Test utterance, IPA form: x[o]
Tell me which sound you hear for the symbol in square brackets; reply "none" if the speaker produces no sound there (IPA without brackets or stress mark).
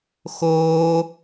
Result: oː